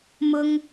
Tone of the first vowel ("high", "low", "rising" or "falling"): high